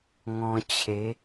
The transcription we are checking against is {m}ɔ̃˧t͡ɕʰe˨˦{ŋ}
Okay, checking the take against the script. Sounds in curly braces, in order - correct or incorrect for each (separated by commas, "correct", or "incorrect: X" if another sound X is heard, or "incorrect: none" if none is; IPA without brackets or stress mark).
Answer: incorrect: ŋ, incorrect: none